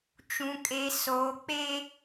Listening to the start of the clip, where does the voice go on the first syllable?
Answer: low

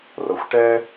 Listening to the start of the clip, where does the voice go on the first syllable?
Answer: low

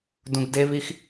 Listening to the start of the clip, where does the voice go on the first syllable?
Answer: low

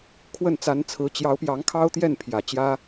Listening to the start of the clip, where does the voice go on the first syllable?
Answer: falling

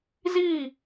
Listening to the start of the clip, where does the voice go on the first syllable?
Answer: falling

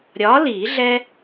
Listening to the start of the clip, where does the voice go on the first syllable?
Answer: rising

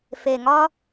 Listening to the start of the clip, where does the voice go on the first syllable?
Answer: low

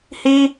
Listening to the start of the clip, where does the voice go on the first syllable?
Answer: high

